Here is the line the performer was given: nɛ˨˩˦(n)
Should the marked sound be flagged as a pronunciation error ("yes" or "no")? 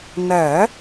yes